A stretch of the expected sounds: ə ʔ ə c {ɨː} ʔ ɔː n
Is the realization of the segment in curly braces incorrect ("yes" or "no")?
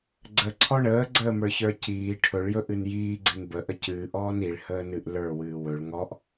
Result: no